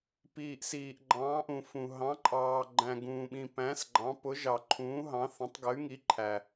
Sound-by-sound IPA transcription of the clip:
piː˧ʔsiː˧ʔ ɡ͡ǃɑ̃ː˧˥ʔũ˧fũ˧ ɦɑ̃˧˥ǃʼɑː˧ɡ͡ǃæ̃˧ ɡũː˧ɓĩ˧ pæ̃˧˥sɡ͡ǃɑ̃˧˥pʊ˧˥ ʒɑ˧ǃʰũː˧˥ɦɑ̃˧˥θə̃˧˥tˤ ɡə˧˥y̯ŋi˧˥ǃʰæ˧

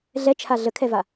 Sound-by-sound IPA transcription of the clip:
ɮɛt͡ʃʰa ɮəkʰɛva

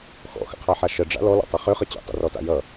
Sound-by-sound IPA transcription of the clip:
xɔ̰xə̰qʰaħa ʃəɖ͡ʐa̰ lɔlɔ̰tˤʌ χøχə t͡ɕḛtˤə̰rɔta̰ jʌ

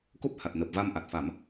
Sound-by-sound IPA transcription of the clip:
ko˦˥p̚ ha˨˩t̚nəː˨˩p̚ va˧mʔa˨˩t̚ fa˨˩˦m

